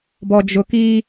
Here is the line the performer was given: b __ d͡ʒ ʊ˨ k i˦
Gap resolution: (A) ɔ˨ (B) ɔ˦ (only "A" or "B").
A